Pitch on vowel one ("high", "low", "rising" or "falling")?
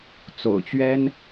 low